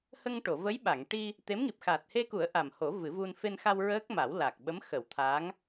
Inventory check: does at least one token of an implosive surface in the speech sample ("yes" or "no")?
yes